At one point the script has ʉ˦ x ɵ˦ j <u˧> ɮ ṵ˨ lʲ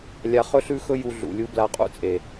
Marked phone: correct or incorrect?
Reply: correct